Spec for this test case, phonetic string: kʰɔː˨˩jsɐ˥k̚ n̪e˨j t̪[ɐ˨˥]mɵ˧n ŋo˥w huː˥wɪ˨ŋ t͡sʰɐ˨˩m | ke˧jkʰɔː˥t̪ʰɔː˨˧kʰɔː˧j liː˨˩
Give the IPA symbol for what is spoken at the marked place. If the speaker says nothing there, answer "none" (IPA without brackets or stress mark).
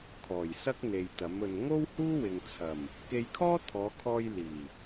ɐ˨˥